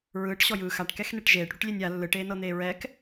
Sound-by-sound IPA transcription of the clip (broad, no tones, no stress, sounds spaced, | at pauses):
ɹ ɯː ʈ ɕ ɔ j ɯː x a ʈ k ɛ x n e ʈ ʒ eː ʈ ɽ u ʈ lʲ e nʲ a lː ɯ ʈ eː n ɤ n̪ eː ɹ ɛ k